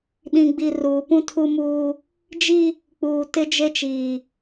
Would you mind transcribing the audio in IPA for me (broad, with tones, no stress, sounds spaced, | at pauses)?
ɗ ĩ˨ ɡ͡b i˨ r uː˨ p ũ˦ tʰ u˦ m uː˦ | d͡ʒ i˦ | k͡p uː˨ t ɪ˦ d͡ʒ e˦ t͡ʃ iː˨